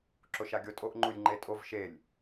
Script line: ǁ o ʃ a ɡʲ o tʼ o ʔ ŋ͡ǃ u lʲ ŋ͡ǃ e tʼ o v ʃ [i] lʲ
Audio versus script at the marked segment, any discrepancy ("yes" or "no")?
yes